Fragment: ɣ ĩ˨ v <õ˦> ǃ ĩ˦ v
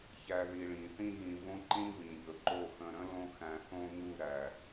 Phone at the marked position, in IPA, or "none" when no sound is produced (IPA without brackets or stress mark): õ˦